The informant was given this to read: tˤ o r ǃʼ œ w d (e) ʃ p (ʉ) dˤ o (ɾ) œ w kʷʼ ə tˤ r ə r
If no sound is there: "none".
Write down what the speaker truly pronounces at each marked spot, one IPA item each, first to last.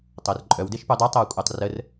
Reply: e, u, tˤ

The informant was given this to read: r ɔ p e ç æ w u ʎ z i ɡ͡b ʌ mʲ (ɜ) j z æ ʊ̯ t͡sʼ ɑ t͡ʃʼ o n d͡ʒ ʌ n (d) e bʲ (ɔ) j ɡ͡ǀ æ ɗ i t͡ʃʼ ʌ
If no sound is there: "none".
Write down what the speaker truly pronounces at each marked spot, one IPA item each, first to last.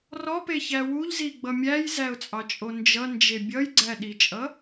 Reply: æ, d͡ʒ, ʌ

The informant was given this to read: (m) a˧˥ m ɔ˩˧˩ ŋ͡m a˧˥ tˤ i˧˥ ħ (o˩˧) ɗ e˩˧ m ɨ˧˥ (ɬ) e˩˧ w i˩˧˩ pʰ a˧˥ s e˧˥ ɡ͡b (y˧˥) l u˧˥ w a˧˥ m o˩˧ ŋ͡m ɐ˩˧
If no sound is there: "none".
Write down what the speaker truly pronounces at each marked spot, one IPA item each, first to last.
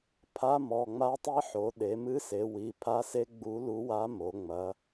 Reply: pʰ, o˩˧, s, u˧˥

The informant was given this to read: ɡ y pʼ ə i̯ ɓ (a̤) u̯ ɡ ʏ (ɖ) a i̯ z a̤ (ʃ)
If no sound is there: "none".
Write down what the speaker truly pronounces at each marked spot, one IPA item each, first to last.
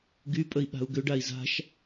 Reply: a̤, ɖ, ʃ

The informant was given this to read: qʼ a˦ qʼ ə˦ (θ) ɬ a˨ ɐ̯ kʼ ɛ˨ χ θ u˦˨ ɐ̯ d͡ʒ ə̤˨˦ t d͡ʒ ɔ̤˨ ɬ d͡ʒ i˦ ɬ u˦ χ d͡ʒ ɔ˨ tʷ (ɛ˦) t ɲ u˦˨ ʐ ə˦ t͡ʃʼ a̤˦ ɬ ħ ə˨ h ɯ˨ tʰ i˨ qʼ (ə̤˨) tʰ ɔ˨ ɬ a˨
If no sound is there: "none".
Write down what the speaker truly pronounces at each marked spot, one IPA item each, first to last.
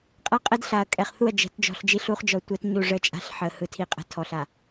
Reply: d, ɛ˦, ə̤˨

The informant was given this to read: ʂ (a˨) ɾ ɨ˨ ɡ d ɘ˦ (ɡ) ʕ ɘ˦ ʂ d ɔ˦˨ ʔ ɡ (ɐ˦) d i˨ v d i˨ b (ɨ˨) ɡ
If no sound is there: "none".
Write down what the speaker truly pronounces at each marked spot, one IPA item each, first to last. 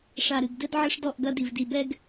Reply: a˨, d, ɐ˦, ɛ˨

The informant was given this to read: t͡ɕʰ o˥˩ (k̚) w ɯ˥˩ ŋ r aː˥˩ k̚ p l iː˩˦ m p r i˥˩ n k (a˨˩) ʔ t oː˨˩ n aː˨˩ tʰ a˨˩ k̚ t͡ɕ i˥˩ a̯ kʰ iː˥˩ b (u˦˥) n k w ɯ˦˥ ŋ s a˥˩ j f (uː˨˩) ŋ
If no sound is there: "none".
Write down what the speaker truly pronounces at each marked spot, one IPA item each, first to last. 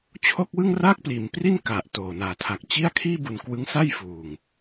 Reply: k̚, a˨˩, u˨˩, uː˨˩

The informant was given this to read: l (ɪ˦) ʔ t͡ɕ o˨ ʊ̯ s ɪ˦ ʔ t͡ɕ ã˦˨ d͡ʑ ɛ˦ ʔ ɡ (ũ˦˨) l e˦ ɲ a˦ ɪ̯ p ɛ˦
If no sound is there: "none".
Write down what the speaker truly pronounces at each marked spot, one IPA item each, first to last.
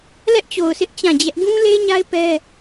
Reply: ɛ˦, ũ˦

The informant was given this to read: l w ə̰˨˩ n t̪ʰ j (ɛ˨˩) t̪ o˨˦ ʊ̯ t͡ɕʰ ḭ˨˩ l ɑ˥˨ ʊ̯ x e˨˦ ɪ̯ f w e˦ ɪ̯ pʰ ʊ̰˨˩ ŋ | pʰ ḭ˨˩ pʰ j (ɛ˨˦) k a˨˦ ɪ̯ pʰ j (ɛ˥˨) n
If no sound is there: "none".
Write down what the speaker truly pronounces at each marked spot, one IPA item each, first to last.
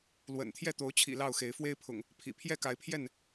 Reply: ɛ˥˨, ɛ˥˨, ɛ˥˨

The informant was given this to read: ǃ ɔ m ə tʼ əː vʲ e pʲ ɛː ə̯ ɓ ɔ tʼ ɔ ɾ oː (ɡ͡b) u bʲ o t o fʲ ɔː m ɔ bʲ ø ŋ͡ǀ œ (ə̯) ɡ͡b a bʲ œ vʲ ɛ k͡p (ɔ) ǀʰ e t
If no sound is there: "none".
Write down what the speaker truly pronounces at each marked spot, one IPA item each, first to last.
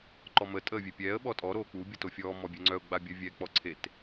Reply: k͡p, ʊ̯, ɔ

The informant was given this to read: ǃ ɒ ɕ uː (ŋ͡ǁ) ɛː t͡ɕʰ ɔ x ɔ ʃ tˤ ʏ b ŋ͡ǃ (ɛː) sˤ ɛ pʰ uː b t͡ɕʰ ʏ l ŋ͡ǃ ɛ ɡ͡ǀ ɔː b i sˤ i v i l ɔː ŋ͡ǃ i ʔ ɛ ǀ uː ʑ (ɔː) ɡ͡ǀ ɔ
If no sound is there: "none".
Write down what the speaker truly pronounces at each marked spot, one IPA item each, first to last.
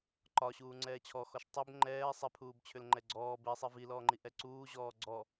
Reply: ŋ͡ǀ, ɛː, ɔː

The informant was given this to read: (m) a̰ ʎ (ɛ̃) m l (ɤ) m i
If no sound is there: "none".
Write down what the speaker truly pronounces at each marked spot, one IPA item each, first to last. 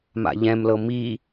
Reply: m, ɛ̃, ɤ

